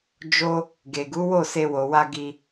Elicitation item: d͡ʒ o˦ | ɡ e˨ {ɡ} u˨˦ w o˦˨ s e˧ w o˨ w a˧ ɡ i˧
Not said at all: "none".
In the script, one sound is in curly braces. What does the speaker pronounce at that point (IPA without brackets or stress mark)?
ɡ